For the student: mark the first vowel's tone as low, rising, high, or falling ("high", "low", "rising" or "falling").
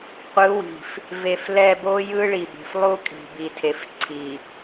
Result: rising